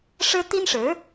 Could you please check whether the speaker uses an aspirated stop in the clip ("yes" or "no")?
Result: no